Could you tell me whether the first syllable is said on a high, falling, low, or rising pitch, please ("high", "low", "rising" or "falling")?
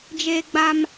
high